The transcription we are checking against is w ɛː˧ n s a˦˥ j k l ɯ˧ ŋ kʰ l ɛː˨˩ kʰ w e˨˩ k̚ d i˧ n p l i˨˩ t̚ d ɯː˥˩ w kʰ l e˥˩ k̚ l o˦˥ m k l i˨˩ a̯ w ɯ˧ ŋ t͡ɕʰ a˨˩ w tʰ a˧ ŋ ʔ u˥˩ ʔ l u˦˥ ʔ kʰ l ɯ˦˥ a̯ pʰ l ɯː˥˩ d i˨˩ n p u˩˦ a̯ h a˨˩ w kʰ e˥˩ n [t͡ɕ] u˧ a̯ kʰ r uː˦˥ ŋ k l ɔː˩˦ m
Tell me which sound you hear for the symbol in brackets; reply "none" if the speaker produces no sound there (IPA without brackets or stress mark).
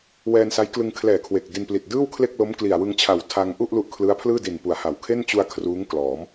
t͡ɕ